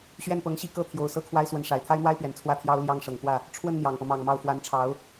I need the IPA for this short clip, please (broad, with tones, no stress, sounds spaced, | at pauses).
ɕ ɥ ɛ˥˩ n p ɤ˧˥ ŋ ɕ i˥˧ k ɤ˥˩ t̪ʰ j o˨˩ ʊ̯ s ɤ˥˩ kʰ w a˥ ɪ̯ s w ə˧˥ n ʂ a˨˩ ɪ̯ t̪ʰ a˥ ɪ̯ n̪ w a˥ ɪ̯ p ɥ ɛ˨˩ n t͡sʰ w ä˥˩ t̪ʰ j ɑ˥ ʊ̯ l j ɑ˥˩ ŋ ʂ ɤ˨˩ ŋ k w ä˥˩ | ʈ͡ʂʰ w ə˥˩ n n̪ j ɑ˨˩ ŋ p ɤ˦ m ɑ˨˩ ŋ m ɑ˥˩ ʊ̯ f w a˧˥ n ʈ͡ʂʰ ɑ˧˥ ʊ̯